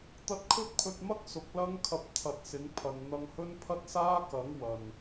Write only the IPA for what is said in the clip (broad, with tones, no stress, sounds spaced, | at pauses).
t̪ ɐ˧ t̚ kʰ ɵ˥ t̚ pʰ ɵ˧ t̚ m ɐ˥ k̚ s ʊ˨˥ k̚ l ɐ˥ ŋ kʰ ɐ˧ p̚ t̪ʰ ɐ˧ t̚ s ɪ˨˥ ŋ pʰ ɐ˨ n n̪ ɐ˧ ŋ h ɵ˥ n pʰ ɐ˥ t̚ s aː˥ k ɐ˨˥ ŋ w ɐ˨ n